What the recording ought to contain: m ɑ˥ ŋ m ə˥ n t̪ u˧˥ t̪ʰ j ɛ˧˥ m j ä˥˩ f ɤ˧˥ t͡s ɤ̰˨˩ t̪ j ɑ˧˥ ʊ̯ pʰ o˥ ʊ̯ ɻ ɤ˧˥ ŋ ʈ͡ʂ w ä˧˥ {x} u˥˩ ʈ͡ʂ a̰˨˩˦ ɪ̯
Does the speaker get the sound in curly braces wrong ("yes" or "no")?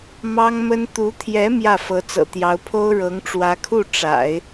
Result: yes